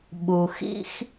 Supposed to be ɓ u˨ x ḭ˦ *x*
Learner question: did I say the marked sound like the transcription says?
yes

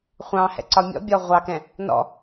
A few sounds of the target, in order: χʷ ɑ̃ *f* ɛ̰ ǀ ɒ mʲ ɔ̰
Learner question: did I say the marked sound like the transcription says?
no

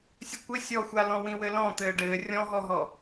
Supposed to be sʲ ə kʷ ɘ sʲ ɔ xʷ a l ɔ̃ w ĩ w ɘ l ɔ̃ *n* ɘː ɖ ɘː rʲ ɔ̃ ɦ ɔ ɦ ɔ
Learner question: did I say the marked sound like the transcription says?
no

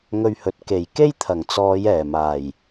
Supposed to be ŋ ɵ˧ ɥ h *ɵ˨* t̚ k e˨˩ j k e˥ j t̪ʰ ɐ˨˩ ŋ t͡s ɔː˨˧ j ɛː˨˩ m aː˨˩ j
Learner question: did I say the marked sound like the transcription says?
yes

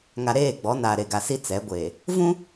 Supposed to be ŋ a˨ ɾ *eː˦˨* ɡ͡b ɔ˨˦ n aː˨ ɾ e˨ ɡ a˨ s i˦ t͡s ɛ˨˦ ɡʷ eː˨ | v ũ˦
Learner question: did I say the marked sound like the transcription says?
yes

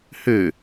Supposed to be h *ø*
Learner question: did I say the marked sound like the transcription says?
yes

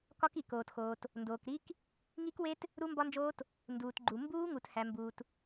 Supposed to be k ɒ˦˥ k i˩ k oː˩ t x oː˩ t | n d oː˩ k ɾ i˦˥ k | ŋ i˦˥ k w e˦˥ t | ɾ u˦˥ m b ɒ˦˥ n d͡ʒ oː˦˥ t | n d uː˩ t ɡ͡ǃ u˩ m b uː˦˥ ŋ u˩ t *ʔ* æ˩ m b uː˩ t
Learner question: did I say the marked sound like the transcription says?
no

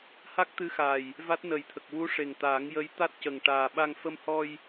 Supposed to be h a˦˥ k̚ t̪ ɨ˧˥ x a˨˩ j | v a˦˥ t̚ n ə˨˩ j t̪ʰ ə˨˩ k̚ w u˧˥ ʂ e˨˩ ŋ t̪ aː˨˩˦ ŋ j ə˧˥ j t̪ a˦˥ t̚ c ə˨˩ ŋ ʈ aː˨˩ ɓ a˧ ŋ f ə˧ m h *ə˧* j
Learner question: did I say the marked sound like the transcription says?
no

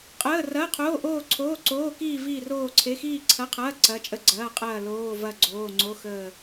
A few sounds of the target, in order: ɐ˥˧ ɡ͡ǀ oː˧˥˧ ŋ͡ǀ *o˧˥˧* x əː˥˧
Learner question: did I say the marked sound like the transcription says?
yes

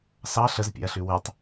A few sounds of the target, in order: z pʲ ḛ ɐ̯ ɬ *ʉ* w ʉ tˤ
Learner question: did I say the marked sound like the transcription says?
yes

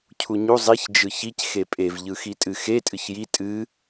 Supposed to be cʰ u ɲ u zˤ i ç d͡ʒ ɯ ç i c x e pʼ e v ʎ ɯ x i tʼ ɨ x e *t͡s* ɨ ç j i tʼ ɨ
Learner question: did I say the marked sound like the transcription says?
no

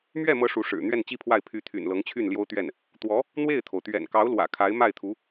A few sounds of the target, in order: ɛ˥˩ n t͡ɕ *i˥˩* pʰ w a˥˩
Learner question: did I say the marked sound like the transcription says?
no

